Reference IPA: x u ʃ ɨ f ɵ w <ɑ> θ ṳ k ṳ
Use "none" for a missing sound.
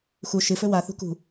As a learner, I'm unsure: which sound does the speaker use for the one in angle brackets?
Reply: a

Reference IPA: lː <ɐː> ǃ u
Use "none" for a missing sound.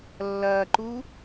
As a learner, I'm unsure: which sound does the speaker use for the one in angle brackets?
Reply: ɐː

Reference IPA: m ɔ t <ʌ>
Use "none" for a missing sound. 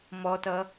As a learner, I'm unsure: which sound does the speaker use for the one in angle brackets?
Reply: ʌ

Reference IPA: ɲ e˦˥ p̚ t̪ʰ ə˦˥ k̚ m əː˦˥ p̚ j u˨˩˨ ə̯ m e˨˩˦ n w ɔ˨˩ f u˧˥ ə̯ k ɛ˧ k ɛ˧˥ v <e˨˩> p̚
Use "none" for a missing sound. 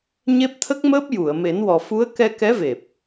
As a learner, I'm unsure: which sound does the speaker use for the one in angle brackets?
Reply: e˨˩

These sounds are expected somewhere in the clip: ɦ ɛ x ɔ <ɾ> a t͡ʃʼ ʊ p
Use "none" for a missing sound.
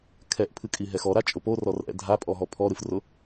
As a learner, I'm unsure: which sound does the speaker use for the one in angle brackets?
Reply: ɾ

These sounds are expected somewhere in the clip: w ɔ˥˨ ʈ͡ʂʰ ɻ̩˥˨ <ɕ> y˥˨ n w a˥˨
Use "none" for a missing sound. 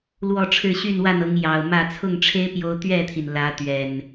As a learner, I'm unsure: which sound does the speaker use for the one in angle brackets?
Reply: ɕ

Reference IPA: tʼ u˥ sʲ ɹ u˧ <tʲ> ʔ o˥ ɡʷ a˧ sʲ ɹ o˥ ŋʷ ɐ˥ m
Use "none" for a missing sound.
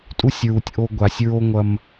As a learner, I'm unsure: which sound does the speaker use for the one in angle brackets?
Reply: tʲ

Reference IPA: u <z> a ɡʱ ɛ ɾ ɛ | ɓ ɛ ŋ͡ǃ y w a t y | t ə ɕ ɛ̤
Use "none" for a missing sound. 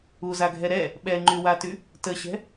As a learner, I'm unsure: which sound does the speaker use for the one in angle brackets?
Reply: z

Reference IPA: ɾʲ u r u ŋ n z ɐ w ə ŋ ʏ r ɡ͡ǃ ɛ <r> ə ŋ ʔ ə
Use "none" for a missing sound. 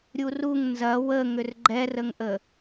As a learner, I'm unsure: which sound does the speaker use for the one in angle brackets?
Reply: r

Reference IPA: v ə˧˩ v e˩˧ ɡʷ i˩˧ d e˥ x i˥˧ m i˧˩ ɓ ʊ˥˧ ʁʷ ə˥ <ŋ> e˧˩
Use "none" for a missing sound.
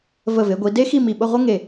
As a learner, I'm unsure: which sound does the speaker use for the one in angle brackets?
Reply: ŋ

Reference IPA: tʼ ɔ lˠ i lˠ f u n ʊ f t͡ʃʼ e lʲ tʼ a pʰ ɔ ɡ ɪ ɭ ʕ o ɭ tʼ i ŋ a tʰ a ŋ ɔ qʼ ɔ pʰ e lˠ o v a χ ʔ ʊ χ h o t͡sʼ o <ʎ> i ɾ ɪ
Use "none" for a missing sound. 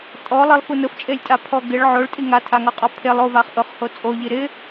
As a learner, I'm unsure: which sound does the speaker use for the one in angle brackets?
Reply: ʎ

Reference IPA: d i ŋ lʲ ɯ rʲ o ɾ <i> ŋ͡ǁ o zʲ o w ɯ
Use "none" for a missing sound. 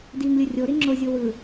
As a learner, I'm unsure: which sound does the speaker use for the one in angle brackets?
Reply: i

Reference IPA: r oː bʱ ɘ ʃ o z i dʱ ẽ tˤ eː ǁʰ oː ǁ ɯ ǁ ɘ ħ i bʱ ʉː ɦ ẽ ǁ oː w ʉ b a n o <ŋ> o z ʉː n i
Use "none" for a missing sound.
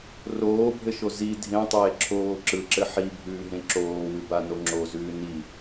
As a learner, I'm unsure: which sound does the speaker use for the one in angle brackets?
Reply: ŋ͡ǁ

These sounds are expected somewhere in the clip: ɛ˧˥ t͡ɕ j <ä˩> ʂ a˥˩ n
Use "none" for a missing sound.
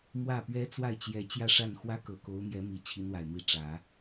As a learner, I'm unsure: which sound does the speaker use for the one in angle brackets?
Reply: ä˥˧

